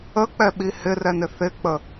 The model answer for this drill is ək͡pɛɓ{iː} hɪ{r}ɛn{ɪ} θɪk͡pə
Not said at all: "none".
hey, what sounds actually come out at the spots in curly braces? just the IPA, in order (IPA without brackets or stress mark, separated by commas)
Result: i, r, ɪ